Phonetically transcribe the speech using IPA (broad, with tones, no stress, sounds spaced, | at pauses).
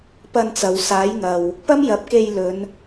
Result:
p ɐ˧ n t͡s ɐ˨ w s aː˨˥ j ŋ ɐ˨ w | p ɐ˥ m j ɐ˨˥ p̚ k e˧ j l ɵ˨˧ n